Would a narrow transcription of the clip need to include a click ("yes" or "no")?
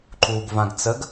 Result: yes